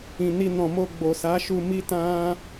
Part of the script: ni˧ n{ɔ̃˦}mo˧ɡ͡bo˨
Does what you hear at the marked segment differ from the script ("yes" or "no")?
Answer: yes